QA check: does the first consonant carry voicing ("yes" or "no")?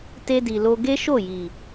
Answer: no